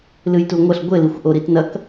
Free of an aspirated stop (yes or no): yes